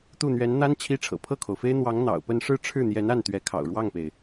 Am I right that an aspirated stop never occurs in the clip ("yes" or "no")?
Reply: no